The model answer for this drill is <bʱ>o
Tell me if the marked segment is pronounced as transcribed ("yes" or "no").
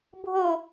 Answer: yes